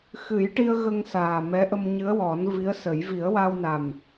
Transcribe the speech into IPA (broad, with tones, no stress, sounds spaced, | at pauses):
x ɨ˨˩˦ j ʈ i˧ ə̯ ɣ ə˧ ŋ s aː˨˩ m ɛ˧˥ ʔ ə˧ m ɲ ɨ˧˥ ə̯ w ɔ˨˩˦ n v i˧˥ ə̯ s ə˨˩˦ j v i˨˩˦ ə̯ w a˧ w n a˨˩ m